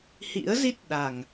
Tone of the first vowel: rising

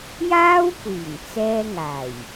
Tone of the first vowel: high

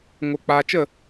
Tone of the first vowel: low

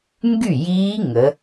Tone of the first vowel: falling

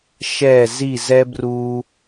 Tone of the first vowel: falling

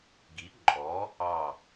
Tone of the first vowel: rising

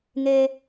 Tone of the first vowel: high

